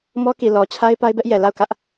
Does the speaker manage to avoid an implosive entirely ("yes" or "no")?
yes